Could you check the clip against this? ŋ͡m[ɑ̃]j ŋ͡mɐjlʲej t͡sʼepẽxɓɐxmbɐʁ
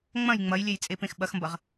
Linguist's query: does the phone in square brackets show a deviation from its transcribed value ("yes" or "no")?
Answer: yes